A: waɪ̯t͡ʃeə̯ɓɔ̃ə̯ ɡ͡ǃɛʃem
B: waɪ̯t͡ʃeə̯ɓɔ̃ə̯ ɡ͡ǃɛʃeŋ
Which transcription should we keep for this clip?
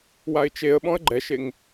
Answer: B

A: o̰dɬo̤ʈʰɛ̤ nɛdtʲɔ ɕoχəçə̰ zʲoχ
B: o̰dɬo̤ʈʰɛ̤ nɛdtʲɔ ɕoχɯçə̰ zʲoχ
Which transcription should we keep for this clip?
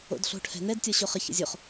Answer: A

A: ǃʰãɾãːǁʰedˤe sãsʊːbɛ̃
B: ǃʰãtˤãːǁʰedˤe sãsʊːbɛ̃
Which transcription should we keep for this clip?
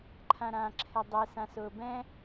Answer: A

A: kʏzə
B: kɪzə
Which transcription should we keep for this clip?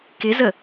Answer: B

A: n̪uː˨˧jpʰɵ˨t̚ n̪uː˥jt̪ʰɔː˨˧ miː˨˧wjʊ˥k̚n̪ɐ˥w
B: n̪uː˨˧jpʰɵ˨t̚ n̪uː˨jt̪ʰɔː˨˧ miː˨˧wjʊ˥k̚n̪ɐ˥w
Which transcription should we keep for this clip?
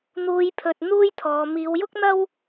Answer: A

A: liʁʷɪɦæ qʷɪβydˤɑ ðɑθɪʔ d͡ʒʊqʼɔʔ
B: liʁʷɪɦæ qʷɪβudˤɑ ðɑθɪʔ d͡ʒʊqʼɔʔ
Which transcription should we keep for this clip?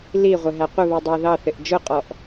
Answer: B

